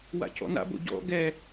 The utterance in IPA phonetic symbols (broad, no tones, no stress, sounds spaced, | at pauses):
w a̰ cʰ ɔ̰ n a̰ b o̰ ɟ ɔ̰ ɡ ɛ